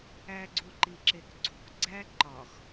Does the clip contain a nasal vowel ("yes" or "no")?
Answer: no